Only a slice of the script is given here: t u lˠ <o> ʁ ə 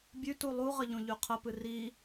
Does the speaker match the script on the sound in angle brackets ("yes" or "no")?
no